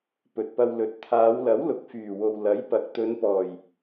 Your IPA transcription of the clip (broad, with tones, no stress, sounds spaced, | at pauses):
p ɵ˨ t̚ p ɐ˧ w l ɵ˨˥ t̚ t̪ʰ aː˨˧ w l ɐ˨˥ w l ʊ˨ k̚ f yː˨˩ w o˨ w l ɐ˨˥ j p ɐ˨ k̚ t̪ ɵ˨˧ n p ɔː˨˩ j